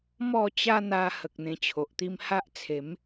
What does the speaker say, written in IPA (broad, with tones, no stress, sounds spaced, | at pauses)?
m ɔ˥˧ t͡ɕ a˦ n̪ a˧ h ə˨ k̚ n̪ ẽ˧ t͡ɕʰ o˨ ʔ t̪ i˦ m h a˦ ʔ t͡sʰ e˨˦ m